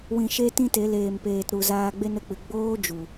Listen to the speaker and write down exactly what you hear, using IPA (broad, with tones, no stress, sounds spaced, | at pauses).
w ĩ˨ ʃ e˧ t ĩ˦ t e˨˦ l eː˨ m p eː˨ t ɾ u˨ z aː˧ ɡ͡b e˦ n ə˦˨ k͡p ɨ˨ ɡ͡b oː˦ d͡ʒ u˨